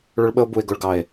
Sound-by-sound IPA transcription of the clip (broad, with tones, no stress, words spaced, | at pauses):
ɭʊ˦ɭɓə˦o̯ bu˨e̯ɡʊ˨ɭ ɡɑ˨e̯